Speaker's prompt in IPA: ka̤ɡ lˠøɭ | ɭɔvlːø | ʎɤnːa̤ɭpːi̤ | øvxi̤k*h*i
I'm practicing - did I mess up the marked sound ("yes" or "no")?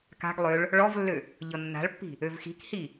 no